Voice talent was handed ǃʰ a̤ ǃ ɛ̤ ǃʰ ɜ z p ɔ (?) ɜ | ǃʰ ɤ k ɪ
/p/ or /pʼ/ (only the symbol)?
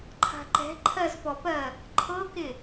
p